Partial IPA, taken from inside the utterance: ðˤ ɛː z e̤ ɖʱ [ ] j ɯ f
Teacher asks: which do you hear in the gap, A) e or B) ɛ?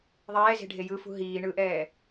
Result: A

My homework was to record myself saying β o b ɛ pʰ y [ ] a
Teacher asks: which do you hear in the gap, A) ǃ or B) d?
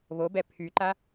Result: A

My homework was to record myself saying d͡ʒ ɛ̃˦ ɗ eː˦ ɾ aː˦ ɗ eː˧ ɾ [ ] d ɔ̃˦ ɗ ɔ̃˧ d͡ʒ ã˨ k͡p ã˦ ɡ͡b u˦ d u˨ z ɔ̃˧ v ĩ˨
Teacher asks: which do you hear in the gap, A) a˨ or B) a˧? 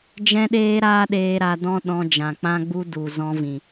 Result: B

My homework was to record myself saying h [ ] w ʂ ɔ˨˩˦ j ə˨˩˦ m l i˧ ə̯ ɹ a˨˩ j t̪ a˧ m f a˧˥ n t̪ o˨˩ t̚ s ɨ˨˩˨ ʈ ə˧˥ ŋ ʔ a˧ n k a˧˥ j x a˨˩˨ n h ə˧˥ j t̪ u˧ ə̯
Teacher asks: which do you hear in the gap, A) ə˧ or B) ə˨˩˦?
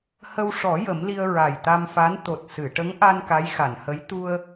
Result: A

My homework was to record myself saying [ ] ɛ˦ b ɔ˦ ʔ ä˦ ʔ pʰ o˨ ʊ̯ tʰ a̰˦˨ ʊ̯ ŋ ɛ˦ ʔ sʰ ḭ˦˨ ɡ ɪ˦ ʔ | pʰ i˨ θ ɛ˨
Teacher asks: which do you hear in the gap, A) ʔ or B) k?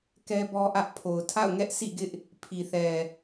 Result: B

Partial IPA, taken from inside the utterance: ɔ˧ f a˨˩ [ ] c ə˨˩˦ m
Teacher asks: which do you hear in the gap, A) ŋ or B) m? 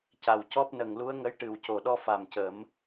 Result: B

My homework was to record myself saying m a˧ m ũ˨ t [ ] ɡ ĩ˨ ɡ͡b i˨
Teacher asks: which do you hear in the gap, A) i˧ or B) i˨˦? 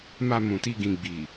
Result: A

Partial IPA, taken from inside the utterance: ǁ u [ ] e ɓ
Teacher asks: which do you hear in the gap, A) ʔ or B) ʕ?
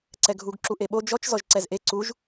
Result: A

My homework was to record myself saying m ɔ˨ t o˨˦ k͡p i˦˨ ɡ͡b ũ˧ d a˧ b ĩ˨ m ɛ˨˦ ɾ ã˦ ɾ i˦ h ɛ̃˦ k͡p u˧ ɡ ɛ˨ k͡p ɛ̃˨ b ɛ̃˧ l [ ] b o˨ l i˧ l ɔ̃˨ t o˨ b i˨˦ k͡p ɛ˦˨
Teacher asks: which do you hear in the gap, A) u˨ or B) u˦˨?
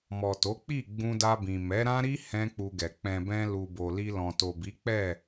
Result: A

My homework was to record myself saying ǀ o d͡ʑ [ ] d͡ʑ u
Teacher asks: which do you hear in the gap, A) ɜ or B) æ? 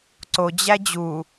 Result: B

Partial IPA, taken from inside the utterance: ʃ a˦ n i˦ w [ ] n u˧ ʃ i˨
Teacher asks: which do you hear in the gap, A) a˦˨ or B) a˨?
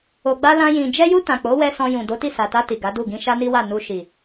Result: A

